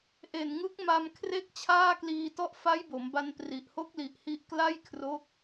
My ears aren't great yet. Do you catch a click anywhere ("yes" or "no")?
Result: no